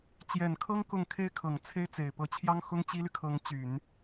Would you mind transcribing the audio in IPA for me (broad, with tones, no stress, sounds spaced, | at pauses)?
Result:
t͡ɕ j ɛ˨˩ n kʰ ɤ˥ ŋ k ʊ˥˩ ŋ kʰ e˥ ɪ̯ kʰ ɤ˨˩ ŋ t͡sʰ e˥ ɪ̯ t͡s e˨˩ ɪ̯ p ɤ˧˥ t͡ɕʰ j ɑ˥ ŋ x ʊ˥ ŋ t͡ɕ i˥ l y˨ kʰ ɤ˧˥ ŋ t͡ɕ y˨˩˦ n